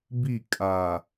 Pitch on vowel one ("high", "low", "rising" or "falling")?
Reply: falling